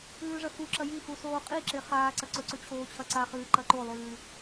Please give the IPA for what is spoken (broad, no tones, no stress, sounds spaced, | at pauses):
ʉː ʐ ɐ x u ǁ ɐ j i x u s oː qʼ i ǁ e χ aː ǀ ɐ ǀ ɵ ǀ ʉ t͡ɕʰ oː t͡ɕʰ ɐ ǀ a χ ɨː ǃ ɐ ǃ o lˠ ʉː